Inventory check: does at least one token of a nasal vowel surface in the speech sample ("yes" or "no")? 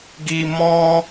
yes